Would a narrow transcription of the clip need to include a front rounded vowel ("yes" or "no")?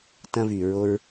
yes